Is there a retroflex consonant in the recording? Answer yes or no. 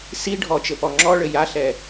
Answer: yes